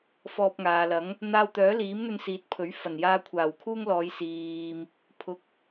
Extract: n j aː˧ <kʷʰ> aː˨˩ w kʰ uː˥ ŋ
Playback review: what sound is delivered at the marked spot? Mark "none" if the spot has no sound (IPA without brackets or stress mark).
kʷʰ